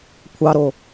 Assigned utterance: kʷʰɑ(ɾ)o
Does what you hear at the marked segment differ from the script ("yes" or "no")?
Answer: no